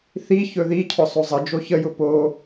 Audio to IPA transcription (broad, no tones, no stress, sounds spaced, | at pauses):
θ i ç ɵ ð i cʰ ʊ sˤ o zˤ ə d͡ʒ o ç ə j ʊ p o